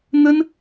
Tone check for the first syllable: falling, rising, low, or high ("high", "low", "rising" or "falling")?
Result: high